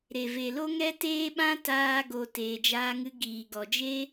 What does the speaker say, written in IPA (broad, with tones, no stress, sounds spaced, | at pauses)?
ɾ e˨ v e˨ l o˦ ŋ ɛ˦ t eː˦ ɓ ã˦ t aː˦ ɡ o˧ t eː˨ d͡ʒ aː˧ ŋ ɨ˧ ɡ iː˨ ɡ ɔ˨ d͡ʒ e˦